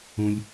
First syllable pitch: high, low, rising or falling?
low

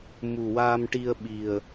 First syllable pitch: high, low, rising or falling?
low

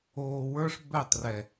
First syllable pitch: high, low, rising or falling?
low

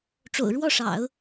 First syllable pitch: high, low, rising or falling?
low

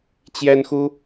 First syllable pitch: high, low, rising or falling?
high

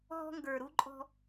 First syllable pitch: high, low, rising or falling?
high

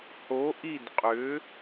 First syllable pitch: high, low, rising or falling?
rising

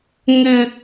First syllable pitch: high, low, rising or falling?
high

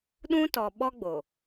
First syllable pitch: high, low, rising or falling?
high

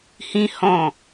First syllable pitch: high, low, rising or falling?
high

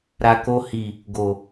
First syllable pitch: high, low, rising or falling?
low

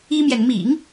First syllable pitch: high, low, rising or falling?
high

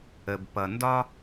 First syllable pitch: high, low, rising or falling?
low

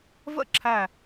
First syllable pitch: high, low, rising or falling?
falling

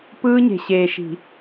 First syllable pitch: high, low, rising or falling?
high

